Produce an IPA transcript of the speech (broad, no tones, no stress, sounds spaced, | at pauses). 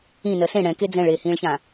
ĩ n ɜ s ẽ ɽ ɛ̃ k e d͡z ɛ̃ ɭ eː h ĩː ɭ ç ã